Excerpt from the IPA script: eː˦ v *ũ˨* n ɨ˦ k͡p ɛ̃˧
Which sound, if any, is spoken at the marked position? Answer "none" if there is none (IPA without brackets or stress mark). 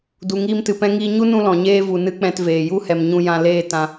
u˨